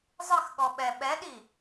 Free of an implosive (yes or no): no